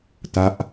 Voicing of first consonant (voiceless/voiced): voiceless